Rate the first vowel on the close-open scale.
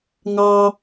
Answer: open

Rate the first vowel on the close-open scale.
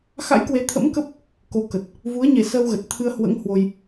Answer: open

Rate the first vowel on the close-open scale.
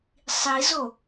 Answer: close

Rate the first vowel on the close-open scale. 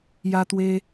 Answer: open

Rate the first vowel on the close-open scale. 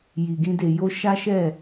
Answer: close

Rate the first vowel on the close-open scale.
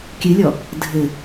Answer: close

